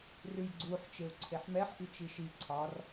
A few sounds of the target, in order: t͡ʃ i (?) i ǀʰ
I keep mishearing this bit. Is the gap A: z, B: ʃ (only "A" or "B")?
B